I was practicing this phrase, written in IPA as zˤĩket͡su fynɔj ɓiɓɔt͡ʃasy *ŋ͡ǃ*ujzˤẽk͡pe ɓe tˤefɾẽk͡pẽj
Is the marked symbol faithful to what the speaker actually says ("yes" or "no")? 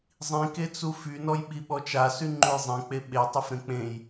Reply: yes